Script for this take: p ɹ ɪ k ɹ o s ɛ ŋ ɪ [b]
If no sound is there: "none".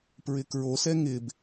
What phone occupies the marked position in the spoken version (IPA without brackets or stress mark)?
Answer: b